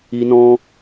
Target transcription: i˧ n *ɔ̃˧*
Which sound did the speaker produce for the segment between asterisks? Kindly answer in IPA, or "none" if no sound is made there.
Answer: ɔ̃˧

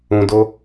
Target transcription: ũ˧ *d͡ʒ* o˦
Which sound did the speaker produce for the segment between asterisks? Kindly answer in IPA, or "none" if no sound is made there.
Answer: d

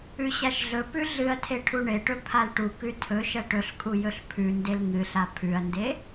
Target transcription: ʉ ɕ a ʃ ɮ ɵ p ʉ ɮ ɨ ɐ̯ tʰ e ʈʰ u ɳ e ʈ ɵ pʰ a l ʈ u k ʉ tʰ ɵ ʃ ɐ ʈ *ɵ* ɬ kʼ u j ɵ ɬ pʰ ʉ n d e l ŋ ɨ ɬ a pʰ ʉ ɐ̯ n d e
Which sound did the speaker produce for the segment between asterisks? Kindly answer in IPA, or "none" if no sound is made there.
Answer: ɵ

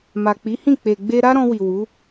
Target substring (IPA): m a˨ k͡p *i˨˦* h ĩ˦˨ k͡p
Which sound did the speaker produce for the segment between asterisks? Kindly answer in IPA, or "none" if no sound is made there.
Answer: i˨˦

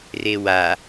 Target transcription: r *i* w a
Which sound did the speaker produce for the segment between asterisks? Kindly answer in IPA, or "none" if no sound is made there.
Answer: e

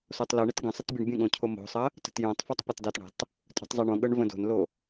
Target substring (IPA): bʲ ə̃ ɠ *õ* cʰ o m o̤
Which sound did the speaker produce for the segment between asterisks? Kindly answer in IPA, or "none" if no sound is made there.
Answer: õ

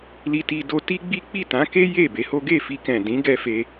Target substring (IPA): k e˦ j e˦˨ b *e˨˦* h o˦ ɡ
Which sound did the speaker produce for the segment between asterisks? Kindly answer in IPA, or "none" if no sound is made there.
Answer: e˨˦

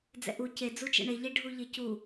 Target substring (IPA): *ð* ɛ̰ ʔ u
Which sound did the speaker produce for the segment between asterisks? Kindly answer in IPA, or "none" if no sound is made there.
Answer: d͡z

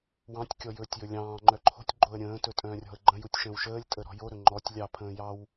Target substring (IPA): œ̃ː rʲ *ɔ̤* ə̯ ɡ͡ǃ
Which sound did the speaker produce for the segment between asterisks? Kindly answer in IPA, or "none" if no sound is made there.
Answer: ɔ̤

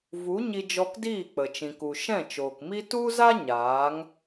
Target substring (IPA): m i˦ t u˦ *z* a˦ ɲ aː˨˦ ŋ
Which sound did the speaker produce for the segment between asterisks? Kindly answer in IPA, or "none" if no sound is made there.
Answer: z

